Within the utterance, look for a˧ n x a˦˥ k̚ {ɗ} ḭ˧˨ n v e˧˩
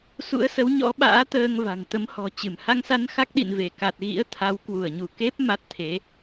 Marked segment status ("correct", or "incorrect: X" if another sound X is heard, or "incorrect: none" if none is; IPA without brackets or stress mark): correct